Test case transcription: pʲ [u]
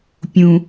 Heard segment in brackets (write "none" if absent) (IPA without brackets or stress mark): ũ